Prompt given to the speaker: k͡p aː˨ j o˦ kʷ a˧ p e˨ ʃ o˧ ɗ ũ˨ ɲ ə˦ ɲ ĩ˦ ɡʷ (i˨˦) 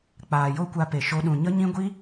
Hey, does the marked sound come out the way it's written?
no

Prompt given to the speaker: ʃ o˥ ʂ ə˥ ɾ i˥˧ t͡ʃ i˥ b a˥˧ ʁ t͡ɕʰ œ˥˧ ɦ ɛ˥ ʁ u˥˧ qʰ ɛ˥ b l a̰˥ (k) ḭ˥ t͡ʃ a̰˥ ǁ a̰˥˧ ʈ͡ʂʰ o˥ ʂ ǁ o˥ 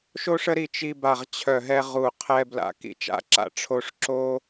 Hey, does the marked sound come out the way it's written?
yes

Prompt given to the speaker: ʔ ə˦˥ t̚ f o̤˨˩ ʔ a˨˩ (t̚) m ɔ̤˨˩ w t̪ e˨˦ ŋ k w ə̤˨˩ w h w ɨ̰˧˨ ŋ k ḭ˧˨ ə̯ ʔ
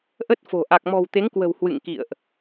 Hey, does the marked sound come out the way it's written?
no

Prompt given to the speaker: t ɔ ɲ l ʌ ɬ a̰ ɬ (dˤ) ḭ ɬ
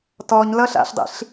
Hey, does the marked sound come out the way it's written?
yes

